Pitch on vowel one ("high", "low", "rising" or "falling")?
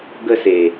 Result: high